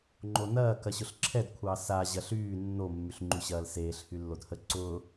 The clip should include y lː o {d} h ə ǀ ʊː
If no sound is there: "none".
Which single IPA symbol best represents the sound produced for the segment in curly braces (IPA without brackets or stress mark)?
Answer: d